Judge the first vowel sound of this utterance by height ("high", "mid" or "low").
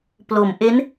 mid